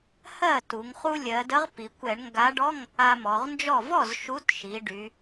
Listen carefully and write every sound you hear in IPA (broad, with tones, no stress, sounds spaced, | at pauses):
h ɜ˥˩ t u˩˧ ŋ χ u˧ lʲ ɜ˩˧ d ə˨˥ ʁ p i˩˧ kʷ ɛ˧˩˧ ɳ ŋ ɡ a˨˥ ɖ ɔ˧˥˧ ŋ | a˧ m ɔ˩˧ ʁ n d͡ʒ ɔ˥˩ v ɔ˥˩ z ʃ u˨˥ t ʃ i˩˧ ɖ y˨˥